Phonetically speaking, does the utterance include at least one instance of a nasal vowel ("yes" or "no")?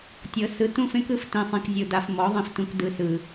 yes